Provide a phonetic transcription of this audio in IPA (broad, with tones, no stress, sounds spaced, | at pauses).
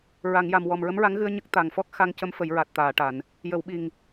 ɹ a˨˩˨ ŋ j a˨˩ m w ɔ˨˩ m ɹ ə˧˥ m ɹ a˧˥ ŋ ɣ ɨ˧ ə̯ ɲ ə˦˥ k̚ t̪ a˨˩ ŋ f ɔ˦˥ k̚ x a˧ ŋ c ə˧˥ m f ə˨˩˦ j ɹ a˨˩ t̚ t̪ aː˨˩˨ ʈ a˨˩˨ n | j ə˨˩˨ w ɓ i˨˩ ŋ